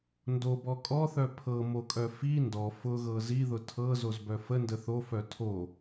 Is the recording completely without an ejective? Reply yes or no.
no